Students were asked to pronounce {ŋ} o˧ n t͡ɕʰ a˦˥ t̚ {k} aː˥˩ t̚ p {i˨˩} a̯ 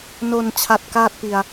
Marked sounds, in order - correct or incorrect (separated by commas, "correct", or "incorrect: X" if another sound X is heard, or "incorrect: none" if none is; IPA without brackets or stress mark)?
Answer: incorrect: n, correct, incorrect: i˧